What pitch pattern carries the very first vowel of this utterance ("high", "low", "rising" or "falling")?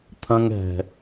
low